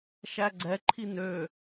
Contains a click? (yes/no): yes